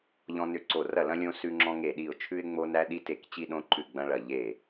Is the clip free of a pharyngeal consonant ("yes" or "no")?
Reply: yes